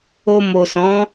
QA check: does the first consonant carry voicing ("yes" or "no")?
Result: yes